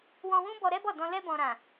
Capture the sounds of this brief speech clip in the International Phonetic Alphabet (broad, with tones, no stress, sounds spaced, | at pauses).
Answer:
w ɔ̃˧ w ũ˦ b ɔ˧ ɾ ɛ˦ b ɔ˦˨ d ɔ̃˧ l ɛ˧ b ɔ̃˨ ɾ ã˨